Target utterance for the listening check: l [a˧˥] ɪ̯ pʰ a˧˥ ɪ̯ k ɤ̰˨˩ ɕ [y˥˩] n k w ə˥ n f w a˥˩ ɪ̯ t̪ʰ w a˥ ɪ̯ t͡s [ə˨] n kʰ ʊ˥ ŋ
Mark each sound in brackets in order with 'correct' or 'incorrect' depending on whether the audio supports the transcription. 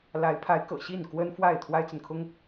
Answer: correct, incorrect: i˥˩, correct

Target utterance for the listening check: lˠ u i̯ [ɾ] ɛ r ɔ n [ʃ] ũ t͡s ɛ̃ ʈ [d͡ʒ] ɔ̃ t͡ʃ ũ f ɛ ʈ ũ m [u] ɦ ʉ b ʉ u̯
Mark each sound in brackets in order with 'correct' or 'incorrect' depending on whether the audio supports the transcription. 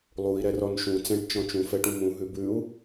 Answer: correct, correct, incorrect: t͡ʃ, incorrect: ũ

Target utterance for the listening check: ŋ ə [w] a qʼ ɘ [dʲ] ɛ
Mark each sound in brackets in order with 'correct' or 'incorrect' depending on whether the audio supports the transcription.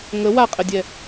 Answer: correct, correct

